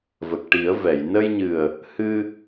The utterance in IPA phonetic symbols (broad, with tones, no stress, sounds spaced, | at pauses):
v ə˨˩ k̚ ʈ i˨˩˦ ə̯ v ɛ˨˩˨ j n ə˧ j ɲ ɨ˨˩ ə̯ | h ɨ˧